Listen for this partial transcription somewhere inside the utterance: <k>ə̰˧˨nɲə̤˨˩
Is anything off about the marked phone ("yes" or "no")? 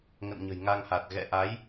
yes